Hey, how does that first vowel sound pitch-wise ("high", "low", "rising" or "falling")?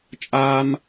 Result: high